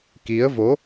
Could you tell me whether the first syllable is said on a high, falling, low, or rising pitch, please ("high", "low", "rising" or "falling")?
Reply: rising